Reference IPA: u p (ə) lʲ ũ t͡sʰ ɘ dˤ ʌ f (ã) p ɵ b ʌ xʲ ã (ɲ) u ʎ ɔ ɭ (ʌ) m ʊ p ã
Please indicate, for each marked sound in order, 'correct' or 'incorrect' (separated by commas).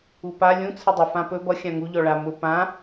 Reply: incorrect, correct, incorrect, incorrect